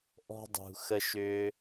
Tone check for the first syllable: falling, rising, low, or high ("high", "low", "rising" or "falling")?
high